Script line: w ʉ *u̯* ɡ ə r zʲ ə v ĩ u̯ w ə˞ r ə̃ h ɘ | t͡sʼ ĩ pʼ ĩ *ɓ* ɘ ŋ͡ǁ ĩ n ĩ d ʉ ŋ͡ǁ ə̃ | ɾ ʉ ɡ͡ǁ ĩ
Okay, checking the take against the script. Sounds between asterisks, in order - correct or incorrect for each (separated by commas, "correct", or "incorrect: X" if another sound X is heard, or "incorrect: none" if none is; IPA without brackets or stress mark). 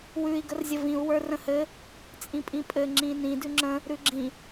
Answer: incorrect: i̯, incorrect: pʼ